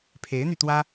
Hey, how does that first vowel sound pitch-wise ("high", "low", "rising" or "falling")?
rising